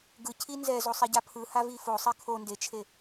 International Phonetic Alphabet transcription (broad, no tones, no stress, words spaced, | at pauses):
ɡɯcʰi nzɛzosˤiɟa pʰɯhavi fosˤi kʰo ndet͡ʃʰe